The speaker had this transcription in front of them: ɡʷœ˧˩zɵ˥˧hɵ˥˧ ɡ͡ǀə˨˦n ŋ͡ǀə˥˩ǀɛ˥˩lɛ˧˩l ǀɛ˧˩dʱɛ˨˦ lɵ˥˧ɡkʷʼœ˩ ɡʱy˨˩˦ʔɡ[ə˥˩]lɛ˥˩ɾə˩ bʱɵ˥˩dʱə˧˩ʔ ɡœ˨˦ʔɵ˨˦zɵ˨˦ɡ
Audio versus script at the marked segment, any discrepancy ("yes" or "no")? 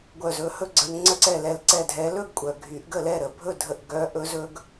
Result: no